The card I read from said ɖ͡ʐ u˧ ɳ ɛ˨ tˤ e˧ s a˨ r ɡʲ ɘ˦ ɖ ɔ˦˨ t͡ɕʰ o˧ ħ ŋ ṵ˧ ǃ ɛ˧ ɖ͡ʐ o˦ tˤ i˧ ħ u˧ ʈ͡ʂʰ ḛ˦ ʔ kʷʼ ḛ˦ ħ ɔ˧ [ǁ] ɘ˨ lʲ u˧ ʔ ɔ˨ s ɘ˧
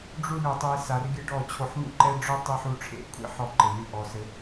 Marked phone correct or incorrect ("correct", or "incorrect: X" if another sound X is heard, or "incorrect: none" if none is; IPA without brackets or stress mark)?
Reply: incorrect: ǃ